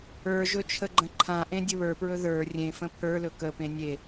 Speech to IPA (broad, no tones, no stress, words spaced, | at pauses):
ə˞ʒɵ t͡ʃʰəɡ͡ǃə̃ǃʰãʔẽ dʲəβə˞pɹɵ ðə˞ rʲẽ fə̃pʰə˞lɵ kəpẽ nʲe